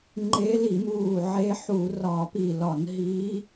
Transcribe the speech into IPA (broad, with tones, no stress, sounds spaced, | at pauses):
ŋ͡ǃ e˧˥ l i˧˩˧ m uː˧˩ ʕ e˧˥ ħ u˧˩˧ r ɒ˧˩˧ p i˧˩ l ɒ˧˩˧ n ɦ i˧˥